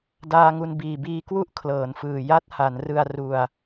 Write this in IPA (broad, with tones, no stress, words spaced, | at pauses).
daː˧ŋu˧n biː˨˩biː˧kwu˥˩ʔ kʰlɤː˩˦nfɯː˨˩ ja˦˥t̚ ha˩˦nrɯ˧a̯ ru˧a̯